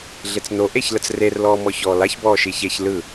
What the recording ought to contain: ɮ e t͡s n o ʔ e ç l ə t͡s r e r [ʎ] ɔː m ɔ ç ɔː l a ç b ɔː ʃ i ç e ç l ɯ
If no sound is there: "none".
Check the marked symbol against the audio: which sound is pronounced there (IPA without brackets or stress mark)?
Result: l